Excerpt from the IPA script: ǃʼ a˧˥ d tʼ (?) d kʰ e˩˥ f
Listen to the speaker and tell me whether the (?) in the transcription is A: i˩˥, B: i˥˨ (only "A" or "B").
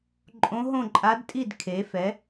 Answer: B